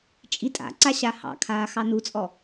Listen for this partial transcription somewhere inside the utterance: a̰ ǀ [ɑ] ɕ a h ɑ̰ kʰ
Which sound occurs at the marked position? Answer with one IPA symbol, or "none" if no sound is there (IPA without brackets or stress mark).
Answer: a